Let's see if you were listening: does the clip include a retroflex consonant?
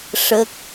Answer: yes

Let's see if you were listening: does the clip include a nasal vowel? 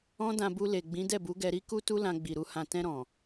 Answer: yes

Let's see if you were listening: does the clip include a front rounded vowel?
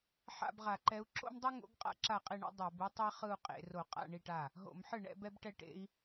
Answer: no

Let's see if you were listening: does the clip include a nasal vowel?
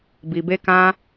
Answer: yes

